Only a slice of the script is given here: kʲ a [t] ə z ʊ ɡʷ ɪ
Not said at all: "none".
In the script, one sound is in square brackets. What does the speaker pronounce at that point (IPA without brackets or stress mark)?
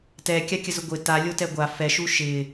kʲ